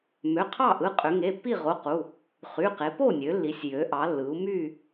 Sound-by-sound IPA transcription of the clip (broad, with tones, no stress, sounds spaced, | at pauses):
m ø˩˧˩ qʰ ɑ˥˨ ʔ ɯ˩˧˩ qʼ ø˩˧ ŋ e˩˧˩ pː i˥˨ ʁ o˩˧˩ q u˩˧˩ | χ y˩˧˩ q e˩˧ p o˥˨ nʲ ø˩˧ lː i˩˧ sʲ j ø˩˧ ʔ ɑ˩˧ lː ɯ˩˧ u̯ m y˥˨